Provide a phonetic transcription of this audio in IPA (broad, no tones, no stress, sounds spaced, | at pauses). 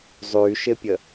zˤ y ʃ ɪ pʲ ə